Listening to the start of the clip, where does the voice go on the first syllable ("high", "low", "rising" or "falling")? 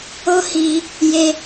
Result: high